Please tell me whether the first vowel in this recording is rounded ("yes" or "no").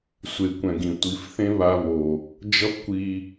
no